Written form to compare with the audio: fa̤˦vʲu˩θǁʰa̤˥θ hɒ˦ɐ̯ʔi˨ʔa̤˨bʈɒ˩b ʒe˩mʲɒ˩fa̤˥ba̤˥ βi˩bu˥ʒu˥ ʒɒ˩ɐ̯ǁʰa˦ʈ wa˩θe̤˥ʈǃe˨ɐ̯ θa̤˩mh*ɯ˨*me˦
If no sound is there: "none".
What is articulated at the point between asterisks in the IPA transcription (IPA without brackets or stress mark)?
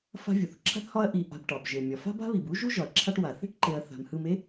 ɯ˨